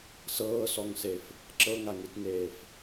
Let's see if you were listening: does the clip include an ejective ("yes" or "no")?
no